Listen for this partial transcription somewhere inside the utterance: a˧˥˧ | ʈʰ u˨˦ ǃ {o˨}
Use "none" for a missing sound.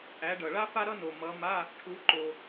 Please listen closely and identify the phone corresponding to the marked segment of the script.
o˨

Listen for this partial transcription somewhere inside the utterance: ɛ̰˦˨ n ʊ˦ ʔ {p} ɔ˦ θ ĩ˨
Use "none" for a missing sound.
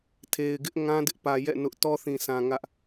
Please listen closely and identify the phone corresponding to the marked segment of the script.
t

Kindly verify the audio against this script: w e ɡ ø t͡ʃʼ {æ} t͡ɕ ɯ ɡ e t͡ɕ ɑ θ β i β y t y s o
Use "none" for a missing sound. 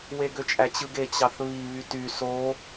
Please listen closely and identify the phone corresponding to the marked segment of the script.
æ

